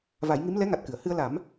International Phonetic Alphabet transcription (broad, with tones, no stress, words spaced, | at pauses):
va˨˩˦jŋi˧˥m lɛ˧˥ŋa˨˩t̚ kɨ˨˩˨ə̯ hɨ˧ə̯la˨˩˦m